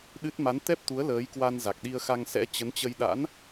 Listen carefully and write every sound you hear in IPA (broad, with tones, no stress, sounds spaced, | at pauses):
ɗ ɨ˦˥ t̚ m a˨˦ n t̪ ɛ˦˥ p̚ t̪ u˨˦ ə̯ l əː˨˦ j k w a˧ n z a˨˩ k̚ ɗ i˧ ə̯ x a˧ ŋ s ɛ̰˧˥ t͡ɕ ə˨˦ n t͡ɕ ə˧ j ɗ a̰˧˥ n